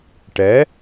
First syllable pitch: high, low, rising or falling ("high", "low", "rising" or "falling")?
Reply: rising